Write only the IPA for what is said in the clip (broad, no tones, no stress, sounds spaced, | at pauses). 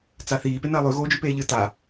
t͡s a θ iː p e n ɐː lˠ ʉ ɣ oː d͡ʒ ʉ p eː ʎ ɨ t a